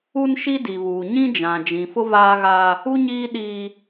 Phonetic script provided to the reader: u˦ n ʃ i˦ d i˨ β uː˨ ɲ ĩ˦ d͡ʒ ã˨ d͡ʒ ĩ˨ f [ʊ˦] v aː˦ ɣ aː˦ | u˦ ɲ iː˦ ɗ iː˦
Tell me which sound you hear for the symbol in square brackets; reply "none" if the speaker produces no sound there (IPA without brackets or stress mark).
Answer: ʊ˦